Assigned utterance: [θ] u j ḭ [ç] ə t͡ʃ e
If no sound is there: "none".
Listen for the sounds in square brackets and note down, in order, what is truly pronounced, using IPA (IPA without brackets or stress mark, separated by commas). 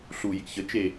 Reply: ɬ, ç